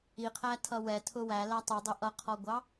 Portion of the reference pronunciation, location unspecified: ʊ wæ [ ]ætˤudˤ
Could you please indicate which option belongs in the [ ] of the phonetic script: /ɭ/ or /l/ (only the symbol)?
l